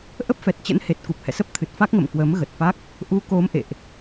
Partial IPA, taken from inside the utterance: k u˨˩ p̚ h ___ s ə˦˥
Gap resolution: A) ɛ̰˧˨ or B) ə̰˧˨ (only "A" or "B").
A